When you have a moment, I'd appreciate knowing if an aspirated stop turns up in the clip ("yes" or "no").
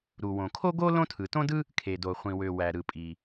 yes